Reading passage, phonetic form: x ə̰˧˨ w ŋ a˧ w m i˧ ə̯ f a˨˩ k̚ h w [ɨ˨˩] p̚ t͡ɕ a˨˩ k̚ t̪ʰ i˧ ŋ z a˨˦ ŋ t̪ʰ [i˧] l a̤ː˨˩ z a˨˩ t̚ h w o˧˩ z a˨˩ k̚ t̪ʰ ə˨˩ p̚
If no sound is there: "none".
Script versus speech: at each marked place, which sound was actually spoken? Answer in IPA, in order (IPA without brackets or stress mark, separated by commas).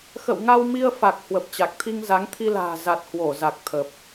ə˨˩, i˧